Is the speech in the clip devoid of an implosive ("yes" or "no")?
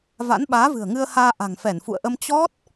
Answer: no